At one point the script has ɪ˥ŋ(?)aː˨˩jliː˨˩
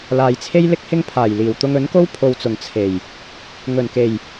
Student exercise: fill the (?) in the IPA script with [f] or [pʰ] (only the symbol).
pʰ